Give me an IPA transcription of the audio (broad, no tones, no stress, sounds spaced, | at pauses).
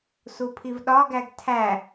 s u pʰ i v ɗ ɒ ɡ æ ɡ tʰ æ